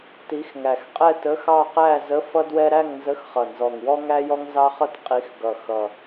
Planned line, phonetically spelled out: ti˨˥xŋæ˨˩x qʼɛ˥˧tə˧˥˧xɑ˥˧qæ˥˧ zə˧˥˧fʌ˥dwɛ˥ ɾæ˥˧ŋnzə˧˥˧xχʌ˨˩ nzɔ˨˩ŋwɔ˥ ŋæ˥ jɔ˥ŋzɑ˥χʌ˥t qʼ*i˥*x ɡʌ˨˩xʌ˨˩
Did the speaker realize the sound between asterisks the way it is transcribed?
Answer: no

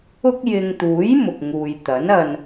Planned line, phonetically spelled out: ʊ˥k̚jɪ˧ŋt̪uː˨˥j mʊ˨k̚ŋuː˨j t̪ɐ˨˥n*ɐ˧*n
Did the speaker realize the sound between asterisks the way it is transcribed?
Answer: yes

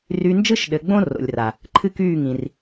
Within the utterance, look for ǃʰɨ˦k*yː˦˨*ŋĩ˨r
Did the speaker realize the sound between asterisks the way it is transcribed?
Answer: yes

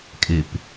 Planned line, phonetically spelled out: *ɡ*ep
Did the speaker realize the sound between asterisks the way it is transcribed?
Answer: no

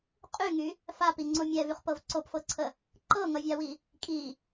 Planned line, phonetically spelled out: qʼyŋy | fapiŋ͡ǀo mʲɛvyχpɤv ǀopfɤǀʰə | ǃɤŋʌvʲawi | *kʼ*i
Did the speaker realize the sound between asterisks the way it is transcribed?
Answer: yes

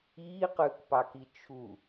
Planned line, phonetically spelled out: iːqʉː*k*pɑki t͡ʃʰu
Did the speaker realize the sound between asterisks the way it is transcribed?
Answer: yes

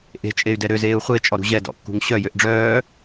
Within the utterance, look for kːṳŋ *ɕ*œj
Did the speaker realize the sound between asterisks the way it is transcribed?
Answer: yes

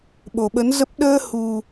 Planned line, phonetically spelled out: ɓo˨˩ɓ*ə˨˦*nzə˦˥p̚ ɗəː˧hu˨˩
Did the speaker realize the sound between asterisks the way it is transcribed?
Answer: yes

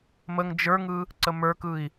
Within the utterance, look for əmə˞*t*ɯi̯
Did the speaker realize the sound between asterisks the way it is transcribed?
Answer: no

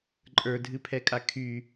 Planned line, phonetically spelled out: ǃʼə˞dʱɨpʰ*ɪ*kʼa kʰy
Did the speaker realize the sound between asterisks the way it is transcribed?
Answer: no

